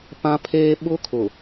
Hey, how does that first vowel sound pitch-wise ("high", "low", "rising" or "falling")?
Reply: high